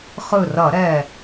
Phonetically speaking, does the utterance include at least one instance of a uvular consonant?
yes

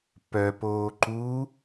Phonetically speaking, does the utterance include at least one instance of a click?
yes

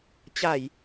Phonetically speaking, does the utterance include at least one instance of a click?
no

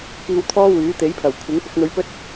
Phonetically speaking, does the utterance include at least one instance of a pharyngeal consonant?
no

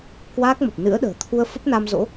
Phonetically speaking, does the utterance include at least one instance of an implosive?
yes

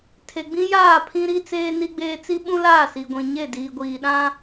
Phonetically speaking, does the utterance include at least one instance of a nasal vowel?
yes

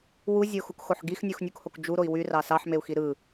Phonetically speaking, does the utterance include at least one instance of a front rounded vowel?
yes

